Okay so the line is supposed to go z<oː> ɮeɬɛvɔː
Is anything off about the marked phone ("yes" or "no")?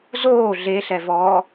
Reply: no